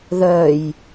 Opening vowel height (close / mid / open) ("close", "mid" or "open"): mid